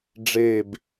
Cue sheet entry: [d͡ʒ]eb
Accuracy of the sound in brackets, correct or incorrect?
incorrect